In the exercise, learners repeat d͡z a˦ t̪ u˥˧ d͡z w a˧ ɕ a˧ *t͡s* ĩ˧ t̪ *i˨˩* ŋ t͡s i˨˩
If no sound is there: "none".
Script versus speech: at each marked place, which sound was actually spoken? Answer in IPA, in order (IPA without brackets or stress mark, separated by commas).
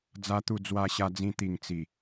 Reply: d͡z, i˨˩